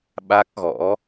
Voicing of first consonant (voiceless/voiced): voiced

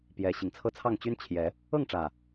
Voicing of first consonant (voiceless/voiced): voiceless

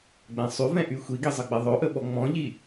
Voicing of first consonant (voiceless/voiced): voiced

